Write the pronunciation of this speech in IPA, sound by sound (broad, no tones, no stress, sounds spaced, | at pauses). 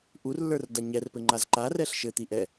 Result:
ʔ u r lː ə˞ r d a ɲ ɛ r p ɘ ŋ͡ǃ a z ǃ a r ɛ ɬ ʃ ɘ t̪ i ʔ ɛ